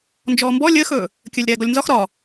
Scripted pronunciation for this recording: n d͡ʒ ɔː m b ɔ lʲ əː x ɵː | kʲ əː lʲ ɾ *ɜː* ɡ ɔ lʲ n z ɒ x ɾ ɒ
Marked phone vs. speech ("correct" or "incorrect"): incorrect